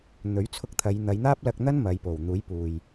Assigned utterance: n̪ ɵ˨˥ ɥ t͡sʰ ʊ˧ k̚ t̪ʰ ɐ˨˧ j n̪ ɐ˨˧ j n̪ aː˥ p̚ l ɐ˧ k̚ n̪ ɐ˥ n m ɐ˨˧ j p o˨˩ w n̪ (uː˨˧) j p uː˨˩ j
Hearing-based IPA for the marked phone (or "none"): uː˨˥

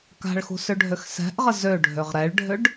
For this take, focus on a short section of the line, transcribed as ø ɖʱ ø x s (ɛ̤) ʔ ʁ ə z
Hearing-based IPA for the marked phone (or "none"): ɛ̤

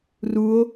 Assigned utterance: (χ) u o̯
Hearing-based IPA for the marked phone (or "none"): r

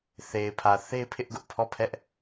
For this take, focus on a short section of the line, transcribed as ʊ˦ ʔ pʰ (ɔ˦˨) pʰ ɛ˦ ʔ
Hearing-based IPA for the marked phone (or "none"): ɔ˦˨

